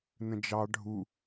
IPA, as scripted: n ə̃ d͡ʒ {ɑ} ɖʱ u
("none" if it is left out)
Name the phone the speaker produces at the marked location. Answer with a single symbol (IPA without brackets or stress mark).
ɑ